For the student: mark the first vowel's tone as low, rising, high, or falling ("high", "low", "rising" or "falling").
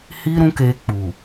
high